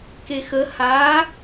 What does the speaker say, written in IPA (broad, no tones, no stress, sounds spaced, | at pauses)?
k e x ə h a